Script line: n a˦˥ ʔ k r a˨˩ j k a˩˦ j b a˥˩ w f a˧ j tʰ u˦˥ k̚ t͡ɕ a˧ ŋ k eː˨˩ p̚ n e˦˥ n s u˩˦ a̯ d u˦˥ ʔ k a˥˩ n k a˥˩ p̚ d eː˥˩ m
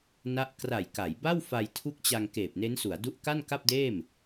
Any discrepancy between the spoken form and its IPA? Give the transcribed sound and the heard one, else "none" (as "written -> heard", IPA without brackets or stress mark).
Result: none